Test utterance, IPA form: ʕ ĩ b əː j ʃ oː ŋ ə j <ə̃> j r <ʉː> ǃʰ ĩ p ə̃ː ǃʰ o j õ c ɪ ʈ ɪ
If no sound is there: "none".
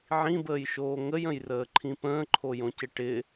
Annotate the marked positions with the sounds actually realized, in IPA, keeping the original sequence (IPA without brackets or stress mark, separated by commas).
ə̃, əː